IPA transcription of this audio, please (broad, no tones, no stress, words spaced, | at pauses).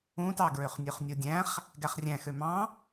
ũtɑɡɹøχnʲøχ nʲodʲæ̃χ | ɡæχrʲæ̃xø mɑ̃